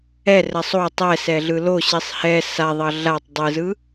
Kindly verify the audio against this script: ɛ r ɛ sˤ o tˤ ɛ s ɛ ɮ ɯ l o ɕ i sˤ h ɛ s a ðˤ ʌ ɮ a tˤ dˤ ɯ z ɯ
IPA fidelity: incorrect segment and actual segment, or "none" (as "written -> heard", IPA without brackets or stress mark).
none